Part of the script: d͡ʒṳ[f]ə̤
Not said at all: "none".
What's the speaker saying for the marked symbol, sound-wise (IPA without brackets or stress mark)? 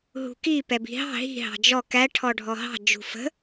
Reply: f